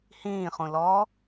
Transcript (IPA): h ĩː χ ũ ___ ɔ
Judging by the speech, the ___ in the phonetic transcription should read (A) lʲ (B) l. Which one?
B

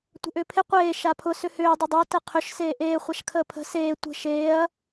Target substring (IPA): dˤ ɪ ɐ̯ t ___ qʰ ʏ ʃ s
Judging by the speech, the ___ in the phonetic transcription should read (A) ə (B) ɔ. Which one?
A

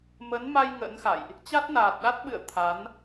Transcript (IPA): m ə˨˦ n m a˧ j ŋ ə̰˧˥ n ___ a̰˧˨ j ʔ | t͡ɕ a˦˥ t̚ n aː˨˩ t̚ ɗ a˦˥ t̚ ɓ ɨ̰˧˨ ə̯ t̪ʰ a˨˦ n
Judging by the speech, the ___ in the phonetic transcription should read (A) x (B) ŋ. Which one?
A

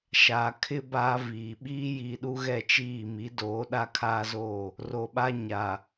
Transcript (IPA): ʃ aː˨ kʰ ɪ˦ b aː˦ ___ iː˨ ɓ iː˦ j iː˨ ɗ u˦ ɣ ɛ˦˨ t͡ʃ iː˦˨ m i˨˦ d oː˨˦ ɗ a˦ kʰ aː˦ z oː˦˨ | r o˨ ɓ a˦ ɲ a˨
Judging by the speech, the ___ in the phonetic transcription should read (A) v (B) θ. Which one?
A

